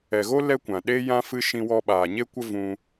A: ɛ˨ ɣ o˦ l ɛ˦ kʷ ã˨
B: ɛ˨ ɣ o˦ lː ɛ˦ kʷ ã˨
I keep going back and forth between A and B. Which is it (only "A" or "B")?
A